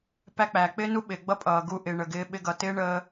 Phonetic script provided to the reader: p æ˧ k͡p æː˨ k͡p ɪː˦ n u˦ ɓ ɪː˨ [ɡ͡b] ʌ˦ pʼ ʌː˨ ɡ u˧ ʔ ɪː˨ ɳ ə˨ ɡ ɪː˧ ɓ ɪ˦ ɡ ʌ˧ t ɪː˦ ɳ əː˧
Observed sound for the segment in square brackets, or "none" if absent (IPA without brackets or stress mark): ɡ͡b